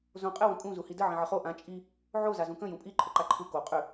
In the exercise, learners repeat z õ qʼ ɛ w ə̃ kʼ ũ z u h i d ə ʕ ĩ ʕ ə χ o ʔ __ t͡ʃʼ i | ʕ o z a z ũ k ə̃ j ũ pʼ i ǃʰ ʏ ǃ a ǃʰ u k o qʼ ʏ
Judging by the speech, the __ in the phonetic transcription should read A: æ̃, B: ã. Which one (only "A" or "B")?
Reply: B